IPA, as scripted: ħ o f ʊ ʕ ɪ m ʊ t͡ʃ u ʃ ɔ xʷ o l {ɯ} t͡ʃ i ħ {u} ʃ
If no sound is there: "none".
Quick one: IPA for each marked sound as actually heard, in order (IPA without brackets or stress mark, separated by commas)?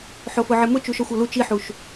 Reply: u, u